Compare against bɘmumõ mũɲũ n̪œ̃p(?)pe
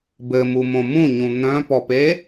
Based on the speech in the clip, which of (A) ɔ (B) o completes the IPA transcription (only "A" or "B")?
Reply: A